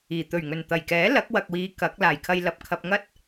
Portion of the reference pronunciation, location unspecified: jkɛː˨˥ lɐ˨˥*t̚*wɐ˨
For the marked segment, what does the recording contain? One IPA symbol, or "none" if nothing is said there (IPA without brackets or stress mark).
k̚